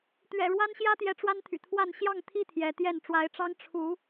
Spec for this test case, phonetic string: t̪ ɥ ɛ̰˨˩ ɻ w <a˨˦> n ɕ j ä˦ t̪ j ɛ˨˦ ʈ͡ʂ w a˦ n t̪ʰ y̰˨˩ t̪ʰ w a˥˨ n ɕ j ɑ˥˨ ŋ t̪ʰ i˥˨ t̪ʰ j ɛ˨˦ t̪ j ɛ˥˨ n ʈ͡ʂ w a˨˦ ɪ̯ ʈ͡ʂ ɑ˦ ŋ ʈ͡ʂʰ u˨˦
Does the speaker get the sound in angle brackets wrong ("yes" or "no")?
yes